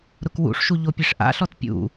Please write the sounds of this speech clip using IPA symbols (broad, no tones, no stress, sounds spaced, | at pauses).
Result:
ɾ ʊ k w ṵ ʂ ʃ u ʎ o pʲ e ʂ ʔ a̰ ɬ ɔ t pʲ ṵ